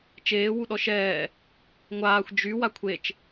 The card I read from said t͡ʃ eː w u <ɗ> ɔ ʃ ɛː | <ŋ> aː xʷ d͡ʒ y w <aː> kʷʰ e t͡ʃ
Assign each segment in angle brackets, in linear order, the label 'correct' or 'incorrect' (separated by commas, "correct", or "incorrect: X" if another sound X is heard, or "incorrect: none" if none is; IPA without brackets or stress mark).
correct, incorrect: ŋʷ, incorrect: a